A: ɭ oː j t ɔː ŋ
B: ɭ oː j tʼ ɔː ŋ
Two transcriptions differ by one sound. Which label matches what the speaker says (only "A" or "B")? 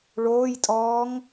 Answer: B